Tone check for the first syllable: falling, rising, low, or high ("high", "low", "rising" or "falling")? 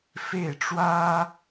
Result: falling